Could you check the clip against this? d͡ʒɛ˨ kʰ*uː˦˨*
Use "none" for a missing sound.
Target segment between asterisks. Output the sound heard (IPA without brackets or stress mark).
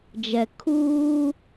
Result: uː˦